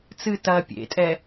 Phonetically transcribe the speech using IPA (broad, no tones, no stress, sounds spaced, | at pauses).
t͡s ɨ t ɐː pʲ ḛ tʼ ɛ